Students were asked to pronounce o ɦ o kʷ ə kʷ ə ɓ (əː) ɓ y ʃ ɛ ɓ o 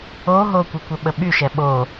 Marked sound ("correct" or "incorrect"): incorrect